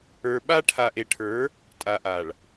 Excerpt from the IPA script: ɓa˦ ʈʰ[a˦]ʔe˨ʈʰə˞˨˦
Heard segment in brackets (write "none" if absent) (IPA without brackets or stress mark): a˨